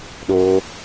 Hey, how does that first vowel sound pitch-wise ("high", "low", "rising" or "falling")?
high